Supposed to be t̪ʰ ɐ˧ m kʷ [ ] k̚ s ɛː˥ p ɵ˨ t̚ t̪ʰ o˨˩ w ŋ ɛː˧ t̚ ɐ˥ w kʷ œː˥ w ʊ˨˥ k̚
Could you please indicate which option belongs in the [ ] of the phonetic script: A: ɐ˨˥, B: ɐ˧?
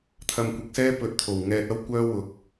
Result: A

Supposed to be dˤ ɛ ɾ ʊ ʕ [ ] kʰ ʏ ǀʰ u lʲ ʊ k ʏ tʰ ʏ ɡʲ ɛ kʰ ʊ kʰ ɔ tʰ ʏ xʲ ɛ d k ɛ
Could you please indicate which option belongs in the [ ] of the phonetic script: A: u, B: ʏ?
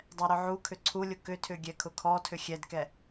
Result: A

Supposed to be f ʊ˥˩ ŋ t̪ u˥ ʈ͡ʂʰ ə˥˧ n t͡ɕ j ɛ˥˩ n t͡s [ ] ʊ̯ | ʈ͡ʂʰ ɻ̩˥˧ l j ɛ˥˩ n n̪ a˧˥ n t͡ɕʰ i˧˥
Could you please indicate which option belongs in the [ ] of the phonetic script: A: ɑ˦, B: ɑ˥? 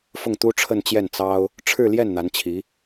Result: B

